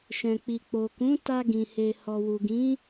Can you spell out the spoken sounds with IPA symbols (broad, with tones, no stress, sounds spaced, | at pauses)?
ʃ ɛ̃˨ k͡p i˨ k͡p o˨ k ũ˨˦ t a˧ ɡ ĩ˨ h e˨ h ɔ˨ w u˨ ɡ ĩ˨˦